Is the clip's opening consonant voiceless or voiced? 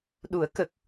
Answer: voiced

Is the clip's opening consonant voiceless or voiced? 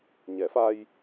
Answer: voiced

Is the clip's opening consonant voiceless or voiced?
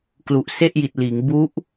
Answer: voiceless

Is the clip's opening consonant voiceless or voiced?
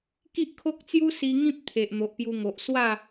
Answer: voiceless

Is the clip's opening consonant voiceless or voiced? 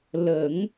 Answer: voiced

